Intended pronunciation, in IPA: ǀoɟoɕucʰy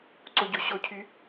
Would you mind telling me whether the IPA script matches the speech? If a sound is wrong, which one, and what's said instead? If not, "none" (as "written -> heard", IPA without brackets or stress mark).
u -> o